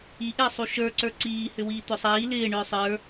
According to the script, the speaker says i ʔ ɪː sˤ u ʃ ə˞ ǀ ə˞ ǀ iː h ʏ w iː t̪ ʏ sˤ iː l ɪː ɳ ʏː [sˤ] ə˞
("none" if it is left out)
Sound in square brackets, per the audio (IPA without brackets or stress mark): sˤ